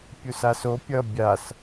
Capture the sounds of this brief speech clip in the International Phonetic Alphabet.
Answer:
pʲ u s a s o pʲ ʌ bʲ a s

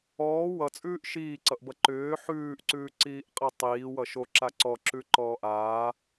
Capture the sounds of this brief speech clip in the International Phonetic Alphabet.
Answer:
ɔː w ʌ t͡sʼ ʉː ʔ ʃ iː ǀ ʌ ʔ b ʌ ǃ ʏː ħ ʉː ʔ ǀ ʉː ǀ iː ʔ qʼ ɛ tˤ iː w ʌ ʃ o ǁ a ǀ ɔ ǁ ʉ ǃ ɔː ʔ aː

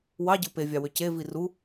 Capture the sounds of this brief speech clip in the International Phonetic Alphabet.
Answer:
w ɑ ɟ ɯ p e vʲ ɑ w ø c e v i r u

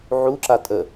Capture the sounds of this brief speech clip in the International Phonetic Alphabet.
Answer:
ʕ u ǁ a tʼ ə

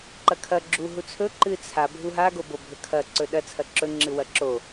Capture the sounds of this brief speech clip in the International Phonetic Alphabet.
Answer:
ǃ ɐ kʰ ɐ ɡ͡ǁ u ɦ u t͡sʰ ɵ ǃ ɨ t͡sʰ a bʱ u ɦ a ɡ o b o bʱ ɵ kʰ ɐ ǀ ɵ ɗ ɐ t͡sʰ ɐ ǁ ɵ ŋ͡ǁ ɨ w ɐ ǁ o

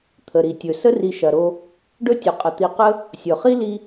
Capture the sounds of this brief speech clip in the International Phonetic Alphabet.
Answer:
t̪ʰ ə˩ ɾ i˩ tʲ ɵ˩ s ə˥ r i˨ ʃ ɐ˨ ɾ o˦ | ɖ ɵ˥ tʲ ɵ˩ qʼ ə˩ t̪ i˨ q ə˥ | sʲ ɵ˩ χ i˥ l i˦

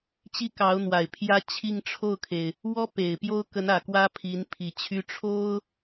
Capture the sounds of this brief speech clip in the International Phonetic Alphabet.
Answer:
t͡ɕ i˥ k ɑ˧˥ ʊ̯ n̪ w a˨˩ ɪ̯ pʰ j ä˥ t͡ɕʰ i˥˧ ŋ ʈ͡ʂʰ o˥˩ ʊ̯ kʰ e˩ ɪ̯ | w ɔ˥ p e˨˩ ɪ̯ p j o˥ ʊ̯ k ə˧˥ n ä˨˩ k w ä˥ pʰ i˧˥ n pʰ i˨˩ t͡ɕʰ y˥ ʈ͡ʂʰ o˥ ʊ̯

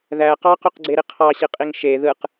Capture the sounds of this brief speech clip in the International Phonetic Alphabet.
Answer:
ð æ q ɑ q y q ɡ͡ǀ e ɾ i qʰ ɑ ɕ i qʼ i ŋ ʃ e ð ɯ q

